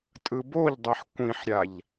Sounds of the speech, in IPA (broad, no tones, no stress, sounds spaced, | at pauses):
tʼ ɯ b o ʎ dˤ ɛ ħ kʷ ĩ ħ ɾʲ a ʎ